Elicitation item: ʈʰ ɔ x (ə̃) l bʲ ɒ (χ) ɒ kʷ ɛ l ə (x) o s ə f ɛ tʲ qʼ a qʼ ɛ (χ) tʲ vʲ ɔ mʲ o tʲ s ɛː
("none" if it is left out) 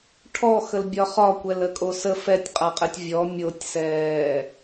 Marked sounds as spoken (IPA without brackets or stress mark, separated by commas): ə, χ, kʼ, none